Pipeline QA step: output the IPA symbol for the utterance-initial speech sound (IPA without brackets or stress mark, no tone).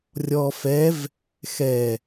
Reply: rʲ